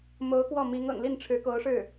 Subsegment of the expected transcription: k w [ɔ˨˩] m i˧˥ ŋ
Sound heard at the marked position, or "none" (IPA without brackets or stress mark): ɔ˥˩